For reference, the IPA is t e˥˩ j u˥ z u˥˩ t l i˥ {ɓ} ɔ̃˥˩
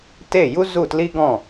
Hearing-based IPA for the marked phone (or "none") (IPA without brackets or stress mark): ɡ